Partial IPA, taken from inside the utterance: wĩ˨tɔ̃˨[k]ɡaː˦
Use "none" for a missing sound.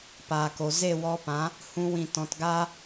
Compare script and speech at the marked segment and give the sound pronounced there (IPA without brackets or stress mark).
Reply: t